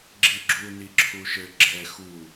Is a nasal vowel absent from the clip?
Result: yes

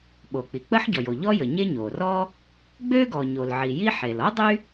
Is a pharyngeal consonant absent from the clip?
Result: no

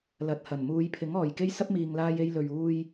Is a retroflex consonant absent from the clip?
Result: yes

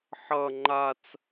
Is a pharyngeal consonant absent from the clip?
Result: no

